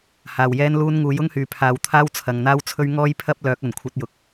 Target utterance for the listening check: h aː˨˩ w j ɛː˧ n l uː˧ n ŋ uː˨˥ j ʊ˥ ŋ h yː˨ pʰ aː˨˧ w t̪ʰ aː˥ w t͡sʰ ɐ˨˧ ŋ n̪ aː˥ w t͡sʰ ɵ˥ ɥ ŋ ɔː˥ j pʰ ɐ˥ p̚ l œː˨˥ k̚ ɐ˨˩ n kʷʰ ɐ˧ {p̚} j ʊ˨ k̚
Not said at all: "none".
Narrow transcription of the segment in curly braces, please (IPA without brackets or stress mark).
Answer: t̚